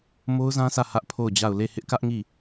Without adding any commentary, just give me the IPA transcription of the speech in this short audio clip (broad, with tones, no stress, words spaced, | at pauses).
mo˦ʊ̯zã˦sä˦˨ hä˦ʔpʰo˦˨ʊ̯d͡ʑa˦˨ʊ̯ le˦˨ hɪ˦ʔkä˦ʔŋi˦˨